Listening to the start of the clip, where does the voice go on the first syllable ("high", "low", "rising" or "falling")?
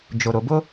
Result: low